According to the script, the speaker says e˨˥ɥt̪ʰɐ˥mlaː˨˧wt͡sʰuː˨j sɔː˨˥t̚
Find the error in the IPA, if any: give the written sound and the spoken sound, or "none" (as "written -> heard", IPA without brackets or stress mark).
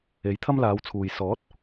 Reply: ɥ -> j